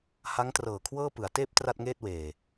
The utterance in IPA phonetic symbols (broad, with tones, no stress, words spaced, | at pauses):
ha˦˥ŋtrɤː˨˩kʰwɤː˥˩ pɯ˩˦a̯teː˦˥p̚ tra˥˩t̚ŋeː˥˩t̚weː˨˩